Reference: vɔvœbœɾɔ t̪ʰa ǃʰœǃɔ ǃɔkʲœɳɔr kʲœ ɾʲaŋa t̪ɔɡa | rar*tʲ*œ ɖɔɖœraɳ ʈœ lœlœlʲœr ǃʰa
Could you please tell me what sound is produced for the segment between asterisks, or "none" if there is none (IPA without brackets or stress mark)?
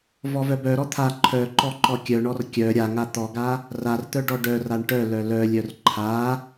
t̪